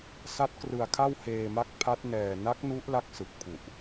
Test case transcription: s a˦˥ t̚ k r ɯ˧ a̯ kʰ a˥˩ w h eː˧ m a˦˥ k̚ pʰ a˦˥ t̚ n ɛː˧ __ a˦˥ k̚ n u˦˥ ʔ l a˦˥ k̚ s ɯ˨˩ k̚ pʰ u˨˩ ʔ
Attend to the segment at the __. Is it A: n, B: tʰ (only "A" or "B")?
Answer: A